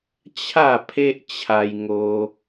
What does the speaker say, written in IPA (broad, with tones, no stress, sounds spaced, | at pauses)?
t͡ɕʰ a˥˧ pʰ e˦ ʔ t͡ɕʰ a˧ j ŋ o˧